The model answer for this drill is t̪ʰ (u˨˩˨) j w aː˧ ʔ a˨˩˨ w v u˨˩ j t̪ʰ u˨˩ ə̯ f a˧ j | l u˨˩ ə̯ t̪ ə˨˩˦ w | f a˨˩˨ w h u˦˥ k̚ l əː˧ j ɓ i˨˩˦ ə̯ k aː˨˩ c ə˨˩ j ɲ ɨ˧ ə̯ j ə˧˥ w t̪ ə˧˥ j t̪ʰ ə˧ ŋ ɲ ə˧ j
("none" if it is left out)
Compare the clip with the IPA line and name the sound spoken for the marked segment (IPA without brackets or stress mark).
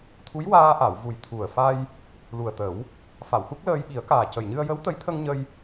u˧˥